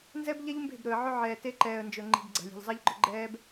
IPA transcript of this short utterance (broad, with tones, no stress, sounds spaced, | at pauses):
n z ɛ˦ b ʎ ɛ˦ ʎ m b e̤˦˨ b ɾ ɵ˨ ə̯ ʕ ɵ˦ ʕ ɛː˨ t e˦ ǃ ɛː˨ ə̯ n d͡ʒ ɵ˨ ŋ͡ǃ i̤˨ b ɡ͡ǀ a̤˨ lʲ e̤˨ ʎ zˤ ɛ˦ ʎ ɡ͡ǃ ɵ˦ ɡ͡ǃ ɛː˦ b